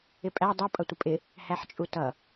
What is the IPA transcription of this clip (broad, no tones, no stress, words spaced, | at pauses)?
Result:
ɪpʼæ dˤʌ pʼʌtʷəpʼɪ | hæħt͡ʃʼutʌ